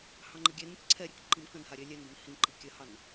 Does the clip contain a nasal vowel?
yes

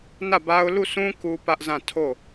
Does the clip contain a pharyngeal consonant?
no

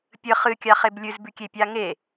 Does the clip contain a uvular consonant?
yes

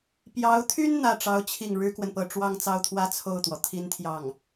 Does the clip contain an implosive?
no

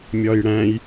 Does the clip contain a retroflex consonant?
yes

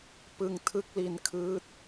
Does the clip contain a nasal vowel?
no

